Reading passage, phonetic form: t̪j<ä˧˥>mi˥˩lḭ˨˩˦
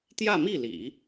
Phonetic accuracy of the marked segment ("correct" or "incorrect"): incorrect